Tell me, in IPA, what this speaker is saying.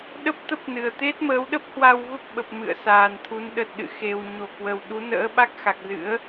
ɗ ə˦˥ p̚ t̪ ə˦˥ p̚ n ɨ˨˩ ə̯ t̪ e˦˥ t̚ m əː˨˦ w ɗ ə˦˥ p̚ h w a˧ w v ə˦˥ p̚ ɓ ə˨˩ p̚ m ɨ̰˧˨ ə̯ s aː˨˩ n t̪ʰ u˨˦ n ɗ ə˨˩ t̚ ɗ ɨ̰˧˨ x e˨˩ w ɲ o˧˩ k w ə˨˩ w ɗ u˨˦ n ə̰ː˧˥ ɓ a˦˥ k̚ x a˨˩ k̚ z ɨ̰˧˥ ə̯

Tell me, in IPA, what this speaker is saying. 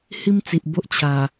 h i˦ m t͡s i˨ ʔ b o˦ ʔ t͡ɕʰ a˨˩

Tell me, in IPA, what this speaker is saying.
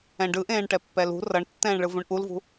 ɛ̃ ɖ ɯ ʔ ẽː ɳ ʈ ɛ pː ɛ l ṳ r ʌ ɳ tː ɛ̃ː ɳ ɭ ɯ v ũ ɳ ʔ u l v ṳ

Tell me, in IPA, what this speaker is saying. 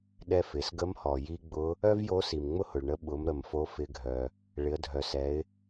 ɗ ɛ˧ f ɪ˩˧ s ɡ ə˧˥ m h ɔ˩ j i˧ ɡ͡b ʊ˧˥ | œ˥ v j o˧˥ s i˩ m ŋ͡m ʊ˥ h ʊ˩ ɭ ɳ ə˧˥ ɓ ʊ˩˧ m ɾ ə˩ m f o˧˥ f ɪ˧ ɡʱ œ˩ | ɭ ɪ˩˧ ə̯ dʱ œ˩ s ɛ˩˧ ɪ̯

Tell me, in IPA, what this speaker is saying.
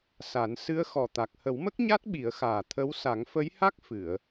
s a˨˩˦ n s ɨ˧˥ ə̯ x ɔ˨˩ t̪ a˨˩ k̚ h ə˨˩˦ w m ə˦˥ k̚ ɲ a˦˥ t̚ ɓ i˨˩˦ ə̯ x aː˨˩ t̪ʰ ə˧˥ w s a˨˩˦ ŋ f ə˧˥ j h a˦˥ k̚ f ɨ˨˩˨ ə̯

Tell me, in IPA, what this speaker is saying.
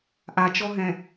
ʔ a t͡ʃ ɔ ɦ ɛ̃

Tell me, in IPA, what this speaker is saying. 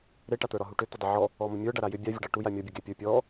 ɾ e ʈ a t̪ ə˞ ɾ ɒ ɦ u ʈ ʏ t̪ ə dˤ ʏ ʕ ɔ | ɔ m ə mʲ ə˞ ɖ a ɾ a j ʏ bʲ a vʲ ə ɖ ɑ ʈ u j a mʲ ɔ bʲ ə ɡ e pʲ ə˞ pʲ ɔ

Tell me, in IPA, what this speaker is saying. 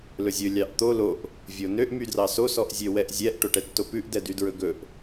l ɵ zʲ ɵ lʲ ɑ ʔ t̪ o l o ʔ | vʲ o n ø ʔ m y d r ɑ s o s ɔ ʔ zʲ ø w ɛ ʔ zʲ ɛ ʔ ʈ o ʈ ɛ tː o p ʉ ʔ d ɛ d y d ɹ ɵ ɡ ɵ ʔ

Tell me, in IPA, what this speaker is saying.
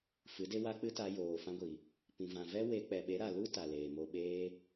f ɨ˨˦ d e˦ w a˦ k͡p ɨ˦ t a˧ j oː˨ f ã˧ ɡʷ i˨ | p ĩ˨ v ã˨ v ɛ˦ w e˧ k͡p ɛ˨ ɓ e˨˦ ɾ a˨ l u˦ t a˨ l eː˨ m o˧ ɓ eː˦

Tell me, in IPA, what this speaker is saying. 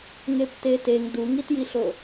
ŋ e p t e t e ŋ d u ŋ i t j i ɬ o

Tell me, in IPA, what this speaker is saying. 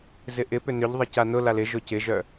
z ɪ ʔ ɪ p ʏ n ʏ ʎ ðˤ ɪ c a n ʊ l a l ɪ ʒ ʊ c ɪ ʒ œ

